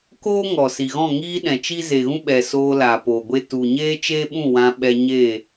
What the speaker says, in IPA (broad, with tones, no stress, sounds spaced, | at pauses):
k o˦ ŋ ɔ˨ s i˨ ɣ ɔ̃˦˨ ŋ iː˦ ɗ ɛ̃˨ t͡ʃ i˦ z e˨ ɣ ũ˦ ɓ ɛ˨ s oː˧ l aː˨ p oː˨ ɡʷ e˦ t u˨ ɲ eː˦ t͡ʃ eː˦ ɓ ũ˦˨ w ã˧ ɓ ɛ˧ ɲ e˦˨